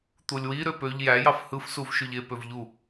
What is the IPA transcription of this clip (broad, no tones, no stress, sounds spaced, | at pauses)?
t̪ u lʲ w i ɾ ø p ø ʎ j æ j ɑ f h ɯ f s u v ʃ y ʎ e p ø v ʎ u